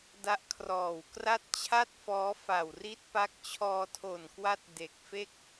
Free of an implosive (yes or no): yes